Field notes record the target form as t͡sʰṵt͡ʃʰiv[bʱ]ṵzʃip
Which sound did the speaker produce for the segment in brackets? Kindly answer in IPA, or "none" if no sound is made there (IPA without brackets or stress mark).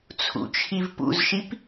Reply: p